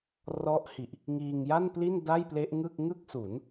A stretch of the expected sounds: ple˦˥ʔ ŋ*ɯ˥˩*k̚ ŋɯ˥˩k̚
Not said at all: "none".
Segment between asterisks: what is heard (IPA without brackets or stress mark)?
ɯ˥˩